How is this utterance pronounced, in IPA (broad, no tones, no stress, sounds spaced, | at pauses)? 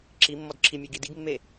ǁ i mː ɔ d ǁʰ i mʲ e ɡ i d i ɡ mː e